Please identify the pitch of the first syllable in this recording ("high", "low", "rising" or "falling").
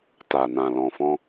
low